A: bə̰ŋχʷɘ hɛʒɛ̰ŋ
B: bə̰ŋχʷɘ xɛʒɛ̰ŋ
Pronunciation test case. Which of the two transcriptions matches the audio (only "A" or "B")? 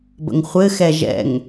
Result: B